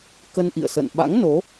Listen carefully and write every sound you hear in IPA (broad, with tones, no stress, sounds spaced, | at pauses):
k ə˧ n ʔ ḭ˧˨ ə̯ s ə̰˧˨ n ɓ a̰˧˥ ŋ n o˨˦